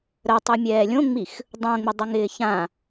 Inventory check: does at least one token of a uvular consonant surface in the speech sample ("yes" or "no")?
no